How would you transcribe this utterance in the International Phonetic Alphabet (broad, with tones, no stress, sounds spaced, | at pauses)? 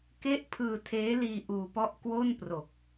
k e˥˩ ʔ pʰ ɯː˧ tʰ eː˦˥ l iː˧ ʔ uː˧ p ɔ˥˩ ʔ k w o˥˩ n p r o˨˩ k̚